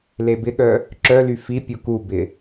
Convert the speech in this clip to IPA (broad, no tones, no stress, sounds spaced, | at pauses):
l e b ɪ ɠ œ | ǁ œ l y f i pʲ u k u b ɪ